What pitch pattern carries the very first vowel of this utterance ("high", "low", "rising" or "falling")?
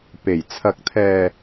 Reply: low